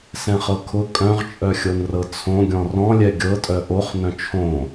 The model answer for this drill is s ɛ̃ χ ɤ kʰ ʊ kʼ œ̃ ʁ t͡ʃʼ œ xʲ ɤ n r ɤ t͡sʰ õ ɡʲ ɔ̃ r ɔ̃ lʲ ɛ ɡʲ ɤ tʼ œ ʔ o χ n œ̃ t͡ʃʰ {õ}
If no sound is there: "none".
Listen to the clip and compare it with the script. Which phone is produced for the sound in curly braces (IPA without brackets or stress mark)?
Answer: õ